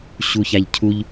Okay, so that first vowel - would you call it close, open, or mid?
close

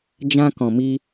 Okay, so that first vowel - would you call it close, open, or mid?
open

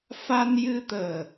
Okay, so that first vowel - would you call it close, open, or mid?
open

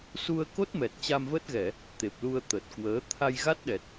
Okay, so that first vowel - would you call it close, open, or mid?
close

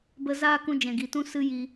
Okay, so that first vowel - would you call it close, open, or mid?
mid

